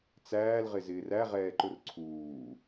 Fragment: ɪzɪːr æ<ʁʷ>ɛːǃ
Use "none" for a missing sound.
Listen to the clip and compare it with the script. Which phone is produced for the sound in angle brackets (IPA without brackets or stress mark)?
ʁ